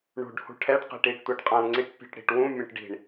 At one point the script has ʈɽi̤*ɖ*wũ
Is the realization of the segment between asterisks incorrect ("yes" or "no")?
yes